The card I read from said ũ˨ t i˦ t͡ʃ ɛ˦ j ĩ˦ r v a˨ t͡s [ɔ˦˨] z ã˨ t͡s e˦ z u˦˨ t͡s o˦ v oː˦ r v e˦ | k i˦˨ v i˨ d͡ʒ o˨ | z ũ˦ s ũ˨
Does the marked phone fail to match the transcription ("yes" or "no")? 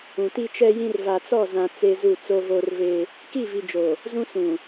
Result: no